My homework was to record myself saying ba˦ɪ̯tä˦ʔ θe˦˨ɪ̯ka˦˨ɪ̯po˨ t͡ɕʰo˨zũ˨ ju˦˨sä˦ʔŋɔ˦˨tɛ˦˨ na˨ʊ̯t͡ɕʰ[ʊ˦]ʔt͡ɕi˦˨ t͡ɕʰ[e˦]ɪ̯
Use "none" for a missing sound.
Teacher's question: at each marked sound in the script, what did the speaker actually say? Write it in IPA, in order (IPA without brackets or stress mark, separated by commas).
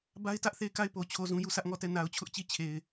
ʊ˦, e˨